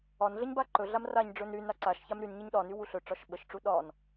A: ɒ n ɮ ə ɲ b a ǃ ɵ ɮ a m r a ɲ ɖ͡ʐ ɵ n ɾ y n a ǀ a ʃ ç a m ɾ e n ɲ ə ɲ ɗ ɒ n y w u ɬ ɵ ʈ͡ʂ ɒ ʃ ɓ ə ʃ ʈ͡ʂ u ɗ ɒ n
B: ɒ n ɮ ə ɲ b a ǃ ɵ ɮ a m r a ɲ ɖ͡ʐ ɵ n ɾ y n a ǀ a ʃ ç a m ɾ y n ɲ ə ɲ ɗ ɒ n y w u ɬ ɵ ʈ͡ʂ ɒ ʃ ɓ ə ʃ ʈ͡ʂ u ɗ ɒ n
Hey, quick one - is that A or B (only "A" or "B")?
B